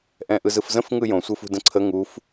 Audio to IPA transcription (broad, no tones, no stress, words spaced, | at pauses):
ʔɛ̃ʔɯzɯfzə̃f ŋɯjõ sʷɯfṳdə̃ǀʰə ŋuf